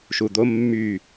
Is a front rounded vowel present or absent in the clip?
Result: present